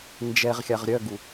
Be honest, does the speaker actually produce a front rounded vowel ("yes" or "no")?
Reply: yes